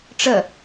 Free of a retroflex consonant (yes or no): no